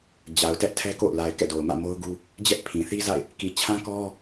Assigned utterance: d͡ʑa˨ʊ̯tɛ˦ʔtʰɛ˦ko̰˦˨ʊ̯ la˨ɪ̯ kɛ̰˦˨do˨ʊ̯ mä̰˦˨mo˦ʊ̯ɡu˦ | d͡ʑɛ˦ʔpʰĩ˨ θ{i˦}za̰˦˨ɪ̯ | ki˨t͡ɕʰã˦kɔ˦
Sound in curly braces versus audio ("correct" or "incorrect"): correct